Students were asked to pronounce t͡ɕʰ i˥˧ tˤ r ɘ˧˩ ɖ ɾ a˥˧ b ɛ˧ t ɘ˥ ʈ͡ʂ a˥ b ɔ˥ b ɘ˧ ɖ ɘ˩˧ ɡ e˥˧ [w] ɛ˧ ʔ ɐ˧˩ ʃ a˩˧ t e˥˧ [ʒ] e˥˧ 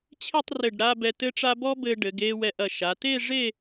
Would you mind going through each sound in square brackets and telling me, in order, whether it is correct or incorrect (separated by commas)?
correct, incorrect